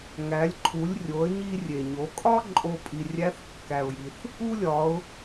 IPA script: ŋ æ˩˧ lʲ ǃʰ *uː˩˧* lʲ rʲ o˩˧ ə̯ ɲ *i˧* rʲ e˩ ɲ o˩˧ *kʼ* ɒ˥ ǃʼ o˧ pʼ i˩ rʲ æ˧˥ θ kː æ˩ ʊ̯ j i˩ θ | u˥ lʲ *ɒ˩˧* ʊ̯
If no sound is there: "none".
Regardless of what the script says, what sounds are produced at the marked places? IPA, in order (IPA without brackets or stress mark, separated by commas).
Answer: u˩˧, i˧, kʼ, ɒ˩˧